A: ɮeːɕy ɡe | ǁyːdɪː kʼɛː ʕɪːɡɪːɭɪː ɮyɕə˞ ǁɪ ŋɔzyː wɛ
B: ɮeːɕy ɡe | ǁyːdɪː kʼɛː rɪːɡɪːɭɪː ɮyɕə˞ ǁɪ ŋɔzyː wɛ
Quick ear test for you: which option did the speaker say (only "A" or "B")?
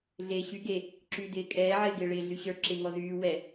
A